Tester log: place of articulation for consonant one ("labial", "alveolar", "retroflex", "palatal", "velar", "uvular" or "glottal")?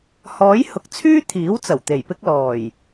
glottal